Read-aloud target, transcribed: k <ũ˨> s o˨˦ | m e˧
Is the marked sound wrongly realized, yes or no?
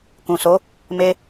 no